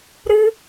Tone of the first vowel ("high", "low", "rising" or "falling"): high